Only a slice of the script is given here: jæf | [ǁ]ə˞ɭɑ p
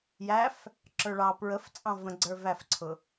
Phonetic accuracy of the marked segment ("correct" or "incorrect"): correct